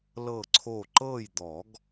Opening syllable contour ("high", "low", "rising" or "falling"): falling